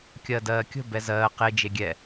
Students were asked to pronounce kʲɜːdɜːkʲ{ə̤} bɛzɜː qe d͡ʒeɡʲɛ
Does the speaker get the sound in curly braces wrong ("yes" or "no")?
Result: no